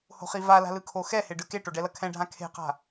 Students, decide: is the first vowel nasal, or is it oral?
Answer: oral